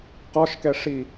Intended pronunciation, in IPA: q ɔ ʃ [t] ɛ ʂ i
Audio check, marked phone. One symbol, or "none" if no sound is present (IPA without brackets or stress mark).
k